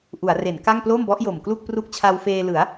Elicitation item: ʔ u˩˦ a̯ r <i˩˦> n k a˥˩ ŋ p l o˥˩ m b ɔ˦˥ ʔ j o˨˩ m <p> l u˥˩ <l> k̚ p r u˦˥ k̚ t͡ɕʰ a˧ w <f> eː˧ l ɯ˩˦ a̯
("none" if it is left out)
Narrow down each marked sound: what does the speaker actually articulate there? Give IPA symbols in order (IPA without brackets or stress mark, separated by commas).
e˩˦, k, none, f